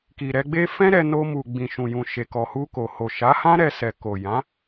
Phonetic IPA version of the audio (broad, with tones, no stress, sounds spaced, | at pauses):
k i˨ ɾ ɛ˧ ɡ͡b e˦ f ɛ̃˦ ɾ ɛ˧ n o˧ m u˨ ɡ͡b ĩ˨ ʃ ũ˨ j ũ˨ ʃ e˨ k ɔ˨ h u˧ k o˨ h o˨ ʃ a˨˦ h ã˦ ɾ ɛ˦ s ɛ˧ k o˨ j ã˨˦